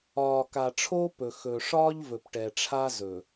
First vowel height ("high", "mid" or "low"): low